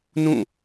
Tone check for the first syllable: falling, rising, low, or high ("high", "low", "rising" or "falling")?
falling